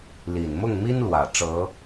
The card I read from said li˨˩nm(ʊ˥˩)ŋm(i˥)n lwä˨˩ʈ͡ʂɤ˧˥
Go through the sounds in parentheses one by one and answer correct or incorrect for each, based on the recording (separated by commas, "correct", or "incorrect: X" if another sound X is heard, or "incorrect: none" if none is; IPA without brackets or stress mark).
correct, correct